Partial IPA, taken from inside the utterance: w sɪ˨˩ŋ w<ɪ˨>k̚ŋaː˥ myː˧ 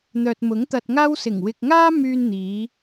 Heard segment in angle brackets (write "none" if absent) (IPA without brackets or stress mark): ɪ˨